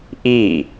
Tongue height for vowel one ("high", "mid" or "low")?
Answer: high